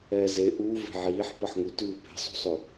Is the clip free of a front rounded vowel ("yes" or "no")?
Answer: yes